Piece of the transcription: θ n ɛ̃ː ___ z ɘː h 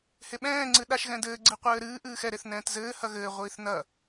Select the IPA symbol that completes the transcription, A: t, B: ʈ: A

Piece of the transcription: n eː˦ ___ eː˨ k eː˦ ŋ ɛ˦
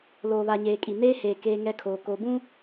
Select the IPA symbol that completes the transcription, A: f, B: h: B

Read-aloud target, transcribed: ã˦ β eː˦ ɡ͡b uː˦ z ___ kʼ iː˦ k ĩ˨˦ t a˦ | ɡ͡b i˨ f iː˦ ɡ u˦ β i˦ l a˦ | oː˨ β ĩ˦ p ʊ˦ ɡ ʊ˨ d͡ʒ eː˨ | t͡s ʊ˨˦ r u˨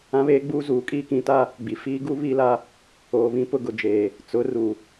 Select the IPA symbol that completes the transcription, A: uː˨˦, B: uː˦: A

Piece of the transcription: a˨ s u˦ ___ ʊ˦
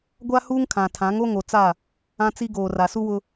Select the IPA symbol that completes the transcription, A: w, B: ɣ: A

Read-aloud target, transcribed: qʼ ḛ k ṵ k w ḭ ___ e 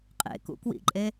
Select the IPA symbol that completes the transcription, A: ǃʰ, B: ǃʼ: B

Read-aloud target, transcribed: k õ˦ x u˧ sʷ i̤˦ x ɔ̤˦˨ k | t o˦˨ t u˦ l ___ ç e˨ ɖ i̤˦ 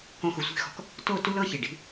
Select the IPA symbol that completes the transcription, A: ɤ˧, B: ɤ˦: B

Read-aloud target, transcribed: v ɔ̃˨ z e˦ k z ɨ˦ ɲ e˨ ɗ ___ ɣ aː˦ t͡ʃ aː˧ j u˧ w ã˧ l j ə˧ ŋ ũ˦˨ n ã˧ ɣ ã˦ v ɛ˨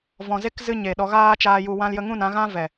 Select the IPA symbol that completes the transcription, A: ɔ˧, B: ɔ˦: A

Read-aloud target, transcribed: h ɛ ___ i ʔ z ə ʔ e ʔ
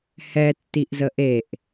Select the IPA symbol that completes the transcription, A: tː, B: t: A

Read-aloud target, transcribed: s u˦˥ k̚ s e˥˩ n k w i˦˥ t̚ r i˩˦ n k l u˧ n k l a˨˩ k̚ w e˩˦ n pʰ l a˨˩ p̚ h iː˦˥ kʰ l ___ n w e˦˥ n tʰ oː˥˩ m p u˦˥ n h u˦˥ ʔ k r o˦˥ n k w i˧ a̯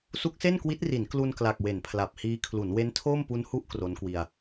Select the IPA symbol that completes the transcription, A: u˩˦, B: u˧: A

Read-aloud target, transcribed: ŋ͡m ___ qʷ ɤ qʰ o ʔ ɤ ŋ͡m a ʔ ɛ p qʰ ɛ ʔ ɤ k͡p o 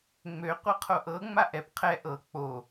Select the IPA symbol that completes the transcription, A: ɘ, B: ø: B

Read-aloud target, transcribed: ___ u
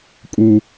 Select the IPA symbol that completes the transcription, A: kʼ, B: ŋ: A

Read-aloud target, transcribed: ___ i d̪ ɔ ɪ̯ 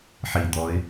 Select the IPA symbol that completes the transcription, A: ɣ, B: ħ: B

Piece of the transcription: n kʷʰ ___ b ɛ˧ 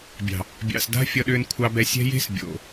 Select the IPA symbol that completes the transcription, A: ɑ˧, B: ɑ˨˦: A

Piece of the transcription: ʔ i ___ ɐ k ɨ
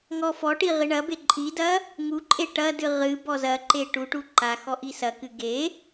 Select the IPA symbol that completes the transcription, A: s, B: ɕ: A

